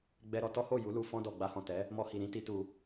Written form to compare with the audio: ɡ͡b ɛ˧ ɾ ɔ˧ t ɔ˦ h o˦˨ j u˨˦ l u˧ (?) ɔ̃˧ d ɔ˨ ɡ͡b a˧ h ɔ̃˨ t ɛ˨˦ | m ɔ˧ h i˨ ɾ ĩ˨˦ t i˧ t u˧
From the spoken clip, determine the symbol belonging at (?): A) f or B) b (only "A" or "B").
A